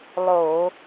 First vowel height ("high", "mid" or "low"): mid